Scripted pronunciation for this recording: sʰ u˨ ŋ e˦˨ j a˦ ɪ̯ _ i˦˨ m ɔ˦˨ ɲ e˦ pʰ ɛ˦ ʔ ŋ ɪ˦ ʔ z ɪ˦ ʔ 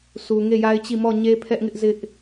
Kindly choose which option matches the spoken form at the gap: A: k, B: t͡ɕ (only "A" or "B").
B